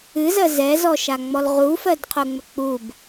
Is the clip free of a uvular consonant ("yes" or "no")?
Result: no